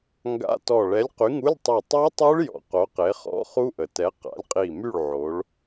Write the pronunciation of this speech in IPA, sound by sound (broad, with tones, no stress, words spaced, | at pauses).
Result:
ŋɡa̰˧˥˧ tɔ˧˩ ɭɛ˨˥lʲqy˨˥ŋu˧˥˧lʲtˤœ˧˩ tˤo˦˥tˤu˦˥ɭ jɔ̰˧˩qo˨˥qe˨˥ χɔ̰˦˥ χu˦˥ʔə˩tɛ˨˥ qa̰˨˥lʲqʼi˧˩ my˥˨ɭ ʕo˨˥ɭ